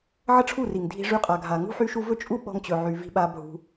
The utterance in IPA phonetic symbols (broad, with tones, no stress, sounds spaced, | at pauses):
ʕ ə˦ ʈ͡ʂʰ u˦˨ r i˨ ŋ dʱ i̤˧ ʐ y˧ qʼ a˨ ɡʱ a˨ ŋ ṳ˦ ħ y˦ ʃ u˦ v ɵ˦ t͡ʃʼ u˦ ɓ ɔ̤˧ ŋ t͡ɕ ɵ˨ ʕ y˨ v i̤˧ ɓ a˧ bʱ ṳ˧